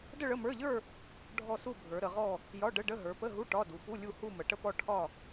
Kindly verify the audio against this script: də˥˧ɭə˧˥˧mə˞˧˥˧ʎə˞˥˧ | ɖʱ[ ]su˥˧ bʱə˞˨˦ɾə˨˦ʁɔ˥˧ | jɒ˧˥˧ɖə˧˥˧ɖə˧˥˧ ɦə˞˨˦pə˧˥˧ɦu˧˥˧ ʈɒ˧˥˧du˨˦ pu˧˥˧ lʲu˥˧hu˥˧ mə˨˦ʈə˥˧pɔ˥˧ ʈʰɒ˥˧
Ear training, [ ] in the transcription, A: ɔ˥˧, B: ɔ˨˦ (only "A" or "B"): A